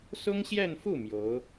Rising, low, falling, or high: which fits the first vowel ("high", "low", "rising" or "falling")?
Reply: high